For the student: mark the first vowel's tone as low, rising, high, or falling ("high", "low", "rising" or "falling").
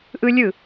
high